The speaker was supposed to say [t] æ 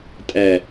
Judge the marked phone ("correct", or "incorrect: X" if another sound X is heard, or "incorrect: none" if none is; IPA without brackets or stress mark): incorrect: tʼ